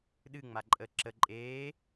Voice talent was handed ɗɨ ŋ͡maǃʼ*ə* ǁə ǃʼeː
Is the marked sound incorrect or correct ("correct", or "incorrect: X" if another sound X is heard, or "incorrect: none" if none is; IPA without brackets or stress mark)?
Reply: correct